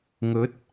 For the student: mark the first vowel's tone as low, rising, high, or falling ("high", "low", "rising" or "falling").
rising